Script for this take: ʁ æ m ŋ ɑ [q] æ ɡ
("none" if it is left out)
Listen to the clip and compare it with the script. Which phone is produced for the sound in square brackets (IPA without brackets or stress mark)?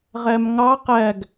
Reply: q